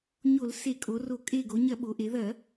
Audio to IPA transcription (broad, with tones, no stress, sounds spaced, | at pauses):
ɲ o˧˩˧ l s e˧˩˧ kʼ o˩˧ r o˧˩˧ kʼ e˧˩ ɡ o˩˧ ɲ ɐ˧˩˧ ɓ o˩˧ ʔ e˩˧ ð ɐ˧˩˧